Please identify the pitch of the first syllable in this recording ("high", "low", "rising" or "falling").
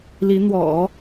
rising